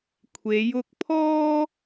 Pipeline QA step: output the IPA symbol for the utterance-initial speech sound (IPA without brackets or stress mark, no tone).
kʷʰ